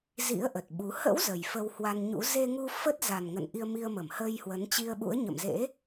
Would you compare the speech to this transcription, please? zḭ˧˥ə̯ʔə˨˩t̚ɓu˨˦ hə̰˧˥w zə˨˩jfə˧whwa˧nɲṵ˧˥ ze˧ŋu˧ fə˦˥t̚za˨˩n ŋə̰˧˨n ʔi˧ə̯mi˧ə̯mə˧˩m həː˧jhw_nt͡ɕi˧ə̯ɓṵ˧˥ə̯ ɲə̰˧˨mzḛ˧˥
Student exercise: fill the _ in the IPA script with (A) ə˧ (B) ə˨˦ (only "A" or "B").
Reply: B